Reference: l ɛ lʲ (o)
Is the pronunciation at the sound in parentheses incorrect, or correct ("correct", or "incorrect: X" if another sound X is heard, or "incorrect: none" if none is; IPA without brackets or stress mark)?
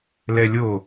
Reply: correct